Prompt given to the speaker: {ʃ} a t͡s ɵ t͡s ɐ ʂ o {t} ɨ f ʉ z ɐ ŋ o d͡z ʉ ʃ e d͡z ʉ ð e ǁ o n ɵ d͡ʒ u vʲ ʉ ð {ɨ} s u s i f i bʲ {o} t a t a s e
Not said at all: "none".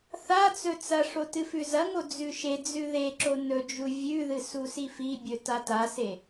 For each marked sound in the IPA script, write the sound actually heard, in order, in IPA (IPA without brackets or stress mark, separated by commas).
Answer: θ, t, ɨ, ɵ